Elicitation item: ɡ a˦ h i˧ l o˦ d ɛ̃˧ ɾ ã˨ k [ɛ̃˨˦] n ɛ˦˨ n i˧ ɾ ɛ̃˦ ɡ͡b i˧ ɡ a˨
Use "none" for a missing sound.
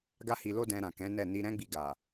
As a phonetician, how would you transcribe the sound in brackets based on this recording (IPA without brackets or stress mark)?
ɛ̃˨˦